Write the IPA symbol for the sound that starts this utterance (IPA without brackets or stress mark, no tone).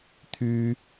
t̪ʰ